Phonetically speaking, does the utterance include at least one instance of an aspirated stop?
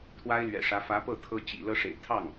yes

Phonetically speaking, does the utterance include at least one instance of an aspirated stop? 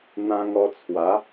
yes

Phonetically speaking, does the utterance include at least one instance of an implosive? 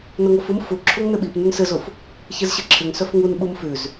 yes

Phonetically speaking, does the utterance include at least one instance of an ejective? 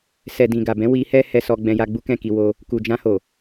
no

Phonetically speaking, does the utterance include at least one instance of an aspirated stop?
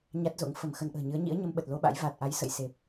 no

